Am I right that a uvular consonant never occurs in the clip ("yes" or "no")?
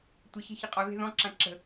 no